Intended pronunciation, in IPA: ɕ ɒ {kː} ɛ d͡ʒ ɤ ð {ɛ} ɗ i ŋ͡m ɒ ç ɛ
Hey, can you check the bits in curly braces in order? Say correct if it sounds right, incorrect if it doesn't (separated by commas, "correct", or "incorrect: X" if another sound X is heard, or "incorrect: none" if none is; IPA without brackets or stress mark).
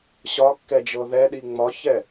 correct, correct